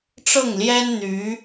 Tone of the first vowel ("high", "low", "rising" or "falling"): falling